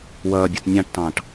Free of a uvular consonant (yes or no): yes